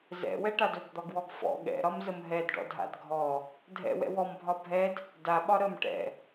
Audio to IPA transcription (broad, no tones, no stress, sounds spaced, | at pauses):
z ɛ̰ w ɛ ʈ a d ɵ ɡ d̪ ɒ ɡ w ɔ ɡ f ɔ̰ ɠ ɛ̰ ɾ ɒ m z ə m ɦ ɛ d ɖ ɔ̰ dʱ a̰ d ɡʱ ɔ | dʱ ɛ̰ w ɛ̰ w ɔ m bʱ ɒ bʱ ɛ d | d a ɓ ɒ ɾ ə m ʈ ɛ̰